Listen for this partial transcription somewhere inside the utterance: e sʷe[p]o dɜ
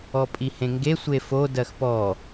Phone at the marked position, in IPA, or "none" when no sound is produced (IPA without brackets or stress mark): f